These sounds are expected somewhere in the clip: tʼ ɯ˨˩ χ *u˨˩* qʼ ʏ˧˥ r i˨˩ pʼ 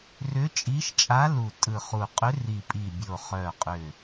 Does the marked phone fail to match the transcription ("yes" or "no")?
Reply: no